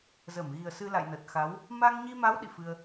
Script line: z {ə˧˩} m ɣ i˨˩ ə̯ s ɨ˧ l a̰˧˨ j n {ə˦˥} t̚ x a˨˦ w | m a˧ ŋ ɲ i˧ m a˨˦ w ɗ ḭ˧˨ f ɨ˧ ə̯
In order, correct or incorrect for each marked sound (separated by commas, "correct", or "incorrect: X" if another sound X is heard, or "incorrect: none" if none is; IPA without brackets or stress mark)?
correct, incorrect: ə˨˩